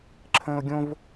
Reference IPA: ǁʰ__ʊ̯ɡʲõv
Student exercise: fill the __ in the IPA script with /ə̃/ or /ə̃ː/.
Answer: ə̃ː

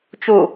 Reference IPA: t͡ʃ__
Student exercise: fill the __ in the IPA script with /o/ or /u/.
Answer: u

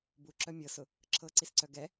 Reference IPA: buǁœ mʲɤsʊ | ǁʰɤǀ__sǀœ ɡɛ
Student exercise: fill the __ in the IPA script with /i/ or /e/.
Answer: i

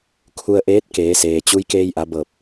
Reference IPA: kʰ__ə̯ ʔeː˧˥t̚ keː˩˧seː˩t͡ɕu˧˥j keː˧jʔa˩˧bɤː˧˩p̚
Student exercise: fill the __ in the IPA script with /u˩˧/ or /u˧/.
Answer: u˧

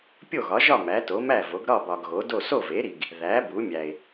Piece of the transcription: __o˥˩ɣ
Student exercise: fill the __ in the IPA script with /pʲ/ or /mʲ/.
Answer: pʲ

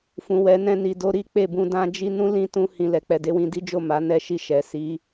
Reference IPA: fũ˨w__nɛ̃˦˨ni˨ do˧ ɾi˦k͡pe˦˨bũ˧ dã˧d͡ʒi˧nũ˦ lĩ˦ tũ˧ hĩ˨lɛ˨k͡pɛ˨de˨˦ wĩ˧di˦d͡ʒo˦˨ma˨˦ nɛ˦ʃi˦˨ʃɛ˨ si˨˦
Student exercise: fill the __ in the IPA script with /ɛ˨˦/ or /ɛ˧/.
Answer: ɛ˨˦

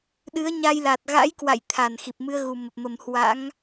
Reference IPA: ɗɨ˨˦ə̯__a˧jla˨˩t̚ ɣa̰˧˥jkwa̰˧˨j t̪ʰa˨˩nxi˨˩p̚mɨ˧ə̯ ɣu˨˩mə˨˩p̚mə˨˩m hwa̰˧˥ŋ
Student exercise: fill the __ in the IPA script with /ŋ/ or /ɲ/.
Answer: ɲ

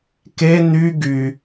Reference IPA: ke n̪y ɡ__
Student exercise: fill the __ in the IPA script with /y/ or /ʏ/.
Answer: y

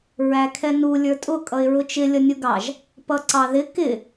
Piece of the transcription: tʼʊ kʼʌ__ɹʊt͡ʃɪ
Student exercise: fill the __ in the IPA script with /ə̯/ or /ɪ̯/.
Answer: ɪ̯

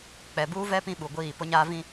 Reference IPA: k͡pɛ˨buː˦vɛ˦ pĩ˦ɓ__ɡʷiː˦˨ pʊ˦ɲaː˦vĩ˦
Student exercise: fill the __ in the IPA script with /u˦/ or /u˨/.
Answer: u˨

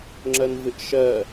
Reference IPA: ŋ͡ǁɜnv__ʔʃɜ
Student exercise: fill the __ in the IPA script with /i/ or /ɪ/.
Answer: ɪ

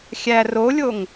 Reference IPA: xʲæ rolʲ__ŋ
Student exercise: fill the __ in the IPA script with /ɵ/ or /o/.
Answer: o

